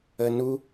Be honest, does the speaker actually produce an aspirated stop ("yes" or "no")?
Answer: no